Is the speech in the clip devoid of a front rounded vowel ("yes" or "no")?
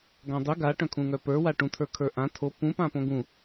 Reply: no